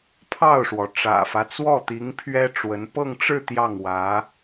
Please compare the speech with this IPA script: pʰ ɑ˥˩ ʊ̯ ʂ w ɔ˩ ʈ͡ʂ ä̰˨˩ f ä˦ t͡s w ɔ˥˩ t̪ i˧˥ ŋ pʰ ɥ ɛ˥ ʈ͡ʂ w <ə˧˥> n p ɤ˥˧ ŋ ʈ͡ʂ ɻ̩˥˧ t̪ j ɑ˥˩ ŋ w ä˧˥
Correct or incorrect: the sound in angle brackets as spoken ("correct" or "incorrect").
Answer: correct